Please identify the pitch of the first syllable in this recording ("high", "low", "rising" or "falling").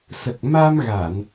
low